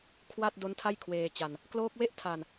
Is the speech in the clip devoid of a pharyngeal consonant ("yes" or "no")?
yes